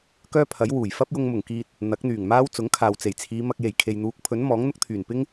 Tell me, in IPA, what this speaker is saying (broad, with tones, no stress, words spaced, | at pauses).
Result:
kœː˥pʰɐ˨˥j wuː˨˩j fɐ˥p̚jʊ˧ŋmʊ˨˩ŋkiː˧t̚ | n̪ɐ˨˥k̚ n̪yː˨˩ŋmaː˥w t͡sʊ˨˥ŋkʰaː˨wt͡se˨˩jt͡sʰiː˨˧ mɐ˧k̚je˨˩j kʰe˨jn̪uː˨˥k̚pʰɵ˨˥n mɔː˨˥ŋn̪ʊ˥k̚t̪ʰyː˨˩n pɪ˥ŋ